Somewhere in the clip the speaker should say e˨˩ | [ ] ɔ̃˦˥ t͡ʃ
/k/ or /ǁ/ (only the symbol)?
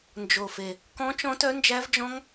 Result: k